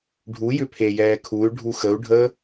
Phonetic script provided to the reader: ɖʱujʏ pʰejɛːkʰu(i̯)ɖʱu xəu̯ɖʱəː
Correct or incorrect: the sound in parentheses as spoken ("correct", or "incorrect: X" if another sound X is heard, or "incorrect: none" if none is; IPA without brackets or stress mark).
incorrect: y̯